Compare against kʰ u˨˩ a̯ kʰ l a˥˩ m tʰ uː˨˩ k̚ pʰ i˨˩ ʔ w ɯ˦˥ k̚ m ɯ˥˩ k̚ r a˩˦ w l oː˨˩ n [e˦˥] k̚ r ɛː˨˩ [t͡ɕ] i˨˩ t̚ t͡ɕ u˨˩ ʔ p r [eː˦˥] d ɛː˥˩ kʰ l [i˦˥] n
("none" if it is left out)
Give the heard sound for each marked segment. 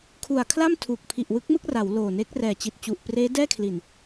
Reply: e˦˥, t͡ɕ, eː˦˥, i˨˩

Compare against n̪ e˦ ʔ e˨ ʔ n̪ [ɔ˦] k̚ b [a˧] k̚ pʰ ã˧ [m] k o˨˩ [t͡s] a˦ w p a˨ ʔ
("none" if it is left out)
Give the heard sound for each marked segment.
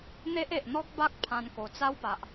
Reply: ɔ˦, a˦, n, t͡s

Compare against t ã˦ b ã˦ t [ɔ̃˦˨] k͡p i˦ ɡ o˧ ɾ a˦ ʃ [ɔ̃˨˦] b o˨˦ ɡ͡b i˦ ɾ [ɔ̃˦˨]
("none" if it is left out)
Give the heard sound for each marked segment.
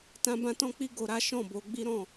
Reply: ɔ̃˦, ɔ̃˦˨, ɔ̃˦˨

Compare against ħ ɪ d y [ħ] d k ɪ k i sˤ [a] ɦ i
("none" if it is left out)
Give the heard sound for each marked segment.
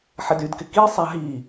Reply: none, a

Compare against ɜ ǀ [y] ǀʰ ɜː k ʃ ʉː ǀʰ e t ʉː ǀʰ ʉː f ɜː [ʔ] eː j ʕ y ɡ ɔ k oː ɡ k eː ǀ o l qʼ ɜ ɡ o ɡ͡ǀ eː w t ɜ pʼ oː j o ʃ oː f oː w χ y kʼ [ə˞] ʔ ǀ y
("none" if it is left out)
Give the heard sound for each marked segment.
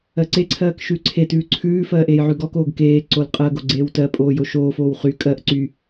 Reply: e, ʔ, ɜ

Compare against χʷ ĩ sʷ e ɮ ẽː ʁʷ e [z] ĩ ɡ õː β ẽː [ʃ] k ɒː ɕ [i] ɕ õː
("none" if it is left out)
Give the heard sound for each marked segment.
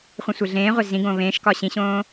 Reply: z, ʃ, ĩ

